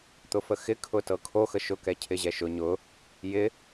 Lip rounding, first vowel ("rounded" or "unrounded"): rounded